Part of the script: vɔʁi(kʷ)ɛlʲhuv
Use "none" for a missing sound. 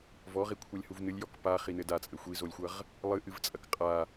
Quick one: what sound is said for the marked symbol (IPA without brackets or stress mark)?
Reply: kʷʰ